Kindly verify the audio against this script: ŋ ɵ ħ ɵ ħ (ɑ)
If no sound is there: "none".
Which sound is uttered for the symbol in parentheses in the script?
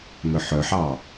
ɑ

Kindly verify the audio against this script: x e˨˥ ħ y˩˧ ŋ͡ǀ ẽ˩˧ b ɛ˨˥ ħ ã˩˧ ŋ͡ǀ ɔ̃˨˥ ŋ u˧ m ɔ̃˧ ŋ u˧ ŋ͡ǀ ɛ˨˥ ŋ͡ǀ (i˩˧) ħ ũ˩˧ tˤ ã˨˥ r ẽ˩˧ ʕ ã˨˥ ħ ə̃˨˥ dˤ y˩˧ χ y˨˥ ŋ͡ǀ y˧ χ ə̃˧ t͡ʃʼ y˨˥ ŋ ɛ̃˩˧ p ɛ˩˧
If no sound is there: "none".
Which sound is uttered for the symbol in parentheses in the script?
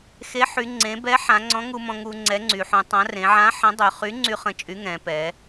y˩˧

